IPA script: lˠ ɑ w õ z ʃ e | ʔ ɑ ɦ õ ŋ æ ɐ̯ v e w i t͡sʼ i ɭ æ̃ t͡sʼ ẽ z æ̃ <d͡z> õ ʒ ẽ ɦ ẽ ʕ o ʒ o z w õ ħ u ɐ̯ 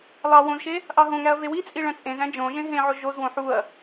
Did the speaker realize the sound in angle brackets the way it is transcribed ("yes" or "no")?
no